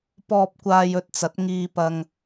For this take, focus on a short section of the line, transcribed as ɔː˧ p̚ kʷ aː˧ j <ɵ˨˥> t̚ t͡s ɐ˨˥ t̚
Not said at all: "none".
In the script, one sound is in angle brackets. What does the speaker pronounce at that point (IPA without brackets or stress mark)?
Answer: ɵ˧